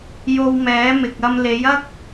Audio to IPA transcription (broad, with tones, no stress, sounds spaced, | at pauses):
j o˧ w m ɛː˨˥ m ɪ˨ k̚ ɐ˧ m l e˨˥ j ɐ˥ k̚